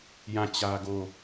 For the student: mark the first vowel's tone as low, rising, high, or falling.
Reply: falling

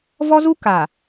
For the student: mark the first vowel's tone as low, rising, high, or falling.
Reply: high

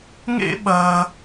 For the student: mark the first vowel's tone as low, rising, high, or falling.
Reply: high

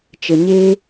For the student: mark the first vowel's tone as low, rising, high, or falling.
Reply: low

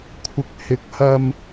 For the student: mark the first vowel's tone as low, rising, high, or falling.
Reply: low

